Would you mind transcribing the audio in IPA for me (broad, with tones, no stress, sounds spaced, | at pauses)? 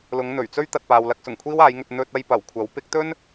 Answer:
l ʊ˨˧ ŋ n̪ ɵ˨˩ ɥ t͡s ɵ˥ ɥ t̪ ɐ˨ t̚ p aː˨ w l ɐ˧ k̚ s ʊ˨˩ ŋ kʷʰ iː˥ w aː˨˧ j ŋ ɵ˧ t̚ n̪ ɵ˧ t̚ ɐ˧ j p ɐ˨˩ w kʷʰ ɐ˨˥ w p ɪ˨˥ k̚ t̪ ɵ˥ n